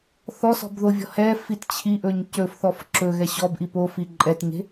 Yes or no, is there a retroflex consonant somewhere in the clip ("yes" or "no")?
no